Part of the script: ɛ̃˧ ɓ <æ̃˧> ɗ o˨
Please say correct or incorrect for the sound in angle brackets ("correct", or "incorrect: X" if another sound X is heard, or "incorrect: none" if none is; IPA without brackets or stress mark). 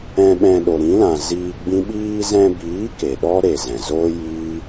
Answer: incorrect: ɛ̃˧